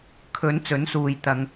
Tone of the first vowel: rising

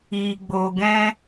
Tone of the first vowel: low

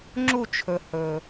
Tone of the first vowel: falling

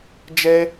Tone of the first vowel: high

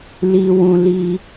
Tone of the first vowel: low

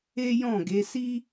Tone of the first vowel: high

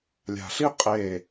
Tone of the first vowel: low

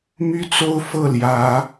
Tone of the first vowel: high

